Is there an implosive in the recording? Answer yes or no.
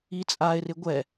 no